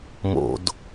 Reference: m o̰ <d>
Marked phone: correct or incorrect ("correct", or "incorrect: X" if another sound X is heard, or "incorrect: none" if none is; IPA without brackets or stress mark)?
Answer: correct